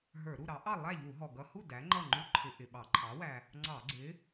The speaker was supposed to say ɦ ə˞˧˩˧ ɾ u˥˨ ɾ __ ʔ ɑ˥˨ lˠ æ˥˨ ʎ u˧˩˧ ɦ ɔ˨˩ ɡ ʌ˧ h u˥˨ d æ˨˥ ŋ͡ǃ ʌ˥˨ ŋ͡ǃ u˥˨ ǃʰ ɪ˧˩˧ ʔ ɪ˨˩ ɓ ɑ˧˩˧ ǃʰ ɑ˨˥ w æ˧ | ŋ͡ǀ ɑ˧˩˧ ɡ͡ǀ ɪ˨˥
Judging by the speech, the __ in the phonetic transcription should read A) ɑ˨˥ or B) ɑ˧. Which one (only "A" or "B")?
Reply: A